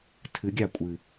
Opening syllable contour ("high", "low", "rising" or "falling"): rising